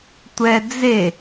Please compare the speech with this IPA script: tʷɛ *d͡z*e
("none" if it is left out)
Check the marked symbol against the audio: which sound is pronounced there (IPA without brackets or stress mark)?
d͡z